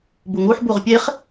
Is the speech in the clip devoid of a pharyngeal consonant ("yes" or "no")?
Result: no